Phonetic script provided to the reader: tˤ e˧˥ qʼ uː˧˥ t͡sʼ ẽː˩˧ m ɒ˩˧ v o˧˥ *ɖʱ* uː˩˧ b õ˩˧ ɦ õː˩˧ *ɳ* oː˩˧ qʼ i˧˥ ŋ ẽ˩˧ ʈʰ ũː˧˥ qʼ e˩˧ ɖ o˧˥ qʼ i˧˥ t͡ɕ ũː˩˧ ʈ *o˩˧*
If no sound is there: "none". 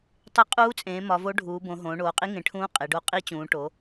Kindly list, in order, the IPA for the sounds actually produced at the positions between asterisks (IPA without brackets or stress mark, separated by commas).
ɖʱ, ɳ, o˩˧